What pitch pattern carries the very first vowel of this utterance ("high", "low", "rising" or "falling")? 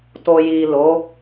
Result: low